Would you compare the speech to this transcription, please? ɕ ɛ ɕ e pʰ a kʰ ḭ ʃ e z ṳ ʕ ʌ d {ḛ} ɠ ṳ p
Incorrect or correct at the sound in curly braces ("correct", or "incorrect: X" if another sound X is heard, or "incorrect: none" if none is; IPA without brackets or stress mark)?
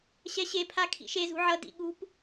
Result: incorrect: ḭ